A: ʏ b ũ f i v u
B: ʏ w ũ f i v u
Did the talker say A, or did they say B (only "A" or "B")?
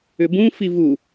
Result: A